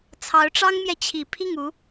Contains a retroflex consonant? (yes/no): yes